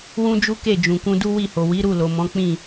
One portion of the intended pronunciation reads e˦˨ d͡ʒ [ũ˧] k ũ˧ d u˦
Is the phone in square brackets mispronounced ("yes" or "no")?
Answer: yes